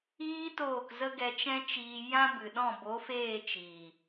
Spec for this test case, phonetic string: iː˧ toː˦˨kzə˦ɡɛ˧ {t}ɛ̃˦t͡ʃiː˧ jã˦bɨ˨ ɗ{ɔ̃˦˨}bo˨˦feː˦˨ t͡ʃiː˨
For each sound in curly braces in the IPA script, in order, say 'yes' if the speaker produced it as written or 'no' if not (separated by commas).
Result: no, yes